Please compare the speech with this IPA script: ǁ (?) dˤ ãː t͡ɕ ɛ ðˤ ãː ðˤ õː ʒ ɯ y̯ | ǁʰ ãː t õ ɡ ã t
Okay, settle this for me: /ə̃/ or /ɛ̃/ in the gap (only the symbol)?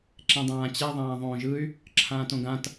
ɛ̃